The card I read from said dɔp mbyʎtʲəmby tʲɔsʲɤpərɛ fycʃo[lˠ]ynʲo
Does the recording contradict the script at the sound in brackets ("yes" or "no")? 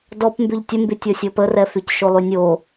no